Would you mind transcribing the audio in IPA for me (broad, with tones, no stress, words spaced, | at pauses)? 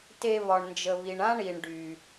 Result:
te˧βɒ˩ɳnd͡ʒə˩βi˩ɳ ã˥ɳi˩ɳ ɖy˩